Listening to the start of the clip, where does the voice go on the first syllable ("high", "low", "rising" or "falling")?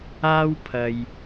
high